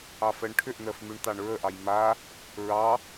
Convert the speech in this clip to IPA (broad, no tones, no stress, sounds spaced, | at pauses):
ɑ f ɜ ɳ ʈʰ ʏ ʔ n̪ ɜ f m ʉ ɳ t̪ ɑ ɳ ɹ ə ʔ ɑ j m a | ɹ ɑ